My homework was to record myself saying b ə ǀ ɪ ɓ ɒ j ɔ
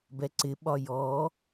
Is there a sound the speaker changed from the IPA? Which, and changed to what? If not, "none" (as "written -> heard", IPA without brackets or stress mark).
ə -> ɛ